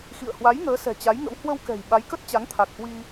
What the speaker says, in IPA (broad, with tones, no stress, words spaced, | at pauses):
xḭ˧˨ə̯hwa˨˦j ŋəː˨˦sɛ̤˨˩t͡ɕa˨˦jŋə̰˧˥w hwə˧wkɛ̤˨˩j ɓa˨˦jkə˦˥t̚t͡ɕa˨˦ŋ t̪ʰa˨˩k̚hwi˧